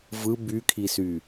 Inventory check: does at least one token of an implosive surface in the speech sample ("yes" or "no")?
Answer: no